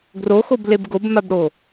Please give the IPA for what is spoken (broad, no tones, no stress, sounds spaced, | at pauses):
ɡ r o x o b l e b ɡ o b m a b ɽ o